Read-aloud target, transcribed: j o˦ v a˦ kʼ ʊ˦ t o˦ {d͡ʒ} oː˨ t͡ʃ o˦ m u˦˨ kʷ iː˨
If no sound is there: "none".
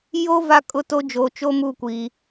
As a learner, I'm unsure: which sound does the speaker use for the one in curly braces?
d͡ʒ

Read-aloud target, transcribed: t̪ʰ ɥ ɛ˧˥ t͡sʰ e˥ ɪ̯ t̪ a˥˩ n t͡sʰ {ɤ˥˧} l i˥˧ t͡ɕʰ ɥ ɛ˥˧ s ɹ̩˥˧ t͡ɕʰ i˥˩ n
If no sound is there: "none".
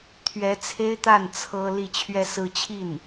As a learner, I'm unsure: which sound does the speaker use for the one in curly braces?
ɤ˥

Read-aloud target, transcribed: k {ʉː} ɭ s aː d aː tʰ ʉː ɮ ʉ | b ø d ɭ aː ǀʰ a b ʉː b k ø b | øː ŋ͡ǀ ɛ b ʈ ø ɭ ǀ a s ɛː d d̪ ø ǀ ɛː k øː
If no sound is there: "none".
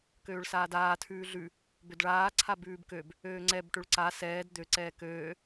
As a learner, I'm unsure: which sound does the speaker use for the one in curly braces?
øː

